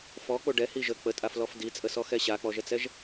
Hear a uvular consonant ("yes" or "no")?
no